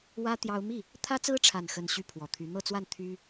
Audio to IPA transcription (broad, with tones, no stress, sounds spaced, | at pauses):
w ä˥ t̪ j ɑ˥ ʊ̯ m i˥˩ | t̪ʰ ä˥ t͡s ɹ̩˥ ʈ͡ʂʰ a˥˧ n x ə˥˧ n ɕ y˥˩ pʰ w ɔ˨˩ t̪ʰ y˧˥ n̪ ɤ˥˧ t͡s w a˥˩ n t̪ʰ y˥